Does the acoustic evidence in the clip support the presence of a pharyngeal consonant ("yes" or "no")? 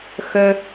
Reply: no